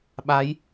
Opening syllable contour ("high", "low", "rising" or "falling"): rising